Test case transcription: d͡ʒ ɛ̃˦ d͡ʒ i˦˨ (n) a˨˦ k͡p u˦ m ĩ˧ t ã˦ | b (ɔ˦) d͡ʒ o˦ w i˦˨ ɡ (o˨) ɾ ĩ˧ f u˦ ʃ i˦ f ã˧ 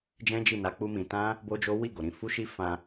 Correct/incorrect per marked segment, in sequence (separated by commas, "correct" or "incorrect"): correct, incorrect, correct